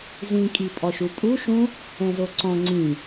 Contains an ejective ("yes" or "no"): yes